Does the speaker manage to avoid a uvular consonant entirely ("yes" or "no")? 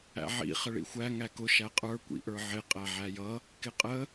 no